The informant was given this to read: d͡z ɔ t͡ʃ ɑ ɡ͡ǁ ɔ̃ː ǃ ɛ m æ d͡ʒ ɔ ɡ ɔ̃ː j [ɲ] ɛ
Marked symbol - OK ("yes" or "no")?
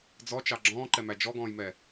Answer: no